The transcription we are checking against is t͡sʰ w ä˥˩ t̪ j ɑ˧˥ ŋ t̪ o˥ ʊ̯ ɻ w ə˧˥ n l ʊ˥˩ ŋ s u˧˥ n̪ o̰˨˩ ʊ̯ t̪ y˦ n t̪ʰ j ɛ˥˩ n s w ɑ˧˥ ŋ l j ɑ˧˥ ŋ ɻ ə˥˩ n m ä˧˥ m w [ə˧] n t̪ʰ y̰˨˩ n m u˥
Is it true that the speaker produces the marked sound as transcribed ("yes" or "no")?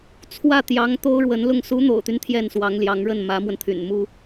yes